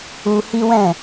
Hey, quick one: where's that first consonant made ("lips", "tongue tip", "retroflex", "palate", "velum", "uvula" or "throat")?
throat